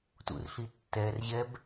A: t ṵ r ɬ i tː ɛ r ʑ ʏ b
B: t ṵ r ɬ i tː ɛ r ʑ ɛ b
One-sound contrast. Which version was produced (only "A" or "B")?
B